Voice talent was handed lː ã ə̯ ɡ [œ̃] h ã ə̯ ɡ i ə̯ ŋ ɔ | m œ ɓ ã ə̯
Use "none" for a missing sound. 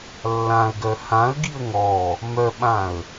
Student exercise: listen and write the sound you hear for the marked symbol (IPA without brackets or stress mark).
œ